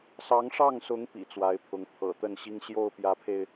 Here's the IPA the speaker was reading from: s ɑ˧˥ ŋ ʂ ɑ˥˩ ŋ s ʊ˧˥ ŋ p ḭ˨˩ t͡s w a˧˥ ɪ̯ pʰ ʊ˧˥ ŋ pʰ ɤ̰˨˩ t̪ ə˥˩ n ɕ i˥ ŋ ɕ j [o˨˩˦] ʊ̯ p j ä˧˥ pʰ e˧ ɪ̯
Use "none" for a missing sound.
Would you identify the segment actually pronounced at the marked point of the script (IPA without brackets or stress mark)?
o˥˩